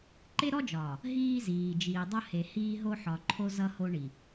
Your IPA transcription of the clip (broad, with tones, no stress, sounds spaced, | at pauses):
ǃ e˦ ɾ ɔ˦ d͡ʒ ɒː˨ | ɦ iː˦ z iː˨ d͡ʒ iː˨ dˤ ʌ˦ h e˨ h iː˦ ɦ o˦ ħ ɒ˨ ǃʰ o˦ z ʌ˦ h o˦ ɳ i˨